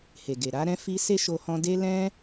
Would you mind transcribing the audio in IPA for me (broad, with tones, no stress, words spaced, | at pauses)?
he˨ɡe˨ ɾa˨˦ɾɛ̃˦fi˦ se˦ʃo˧ hɔ̃˧ de˦ lɛ̃˦